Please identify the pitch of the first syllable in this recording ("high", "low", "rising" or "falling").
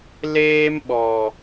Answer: high